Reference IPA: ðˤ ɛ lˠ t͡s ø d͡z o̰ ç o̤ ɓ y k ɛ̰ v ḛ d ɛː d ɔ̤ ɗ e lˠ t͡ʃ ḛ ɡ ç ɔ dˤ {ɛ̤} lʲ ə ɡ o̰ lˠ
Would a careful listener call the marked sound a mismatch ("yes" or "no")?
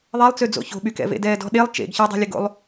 no